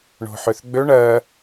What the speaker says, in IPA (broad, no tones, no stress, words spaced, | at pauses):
ɳo̤ħøθɡ͡bø ɳɜ